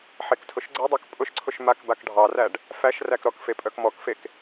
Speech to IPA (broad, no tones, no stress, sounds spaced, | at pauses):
ħ e k tʰ ʊ ʃ ɡ͡ǀ e dˤ ɑ k pʼ ʊ ʃ ǀʰ ʊ ʃ m a k b a k ɖʱ ɑ r æ ɖ | f æ ʃ r æ k ɾ ɔ k f e pʼ œ k m ɔ k f e k